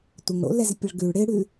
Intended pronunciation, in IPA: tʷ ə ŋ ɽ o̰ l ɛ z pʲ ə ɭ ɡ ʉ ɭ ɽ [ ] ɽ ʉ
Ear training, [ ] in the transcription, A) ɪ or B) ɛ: A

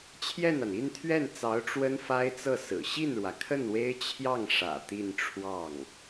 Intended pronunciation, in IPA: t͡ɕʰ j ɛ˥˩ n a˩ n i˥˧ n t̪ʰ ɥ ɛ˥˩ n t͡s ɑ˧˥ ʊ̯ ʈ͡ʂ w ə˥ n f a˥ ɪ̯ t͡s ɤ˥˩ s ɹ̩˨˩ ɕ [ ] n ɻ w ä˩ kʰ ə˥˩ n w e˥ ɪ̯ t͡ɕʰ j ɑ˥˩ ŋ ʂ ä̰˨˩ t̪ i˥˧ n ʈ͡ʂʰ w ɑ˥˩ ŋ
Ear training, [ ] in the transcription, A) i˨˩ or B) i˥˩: B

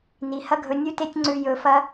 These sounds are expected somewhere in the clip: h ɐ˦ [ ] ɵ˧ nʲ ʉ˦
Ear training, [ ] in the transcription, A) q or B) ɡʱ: B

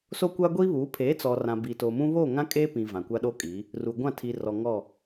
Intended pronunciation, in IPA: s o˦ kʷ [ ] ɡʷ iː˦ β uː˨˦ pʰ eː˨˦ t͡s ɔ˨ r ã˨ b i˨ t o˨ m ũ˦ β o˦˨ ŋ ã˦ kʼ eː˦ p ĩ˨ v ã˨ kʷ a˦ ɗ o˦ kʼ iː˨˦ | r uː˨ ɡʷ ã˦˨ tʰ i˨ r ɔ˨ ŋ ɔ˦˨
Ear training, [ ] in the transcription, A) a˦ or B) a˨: A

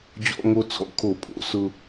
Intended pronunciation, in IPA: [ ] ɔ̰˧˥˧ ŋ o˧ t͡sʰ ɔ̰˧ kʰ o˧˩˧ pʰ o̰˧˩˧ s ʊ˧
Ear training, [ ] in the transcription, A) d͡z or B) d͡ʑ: B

